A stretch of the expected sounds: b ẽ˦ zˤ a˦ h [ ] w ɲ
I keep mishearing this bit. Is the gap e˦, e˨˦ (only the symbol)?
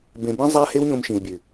e˦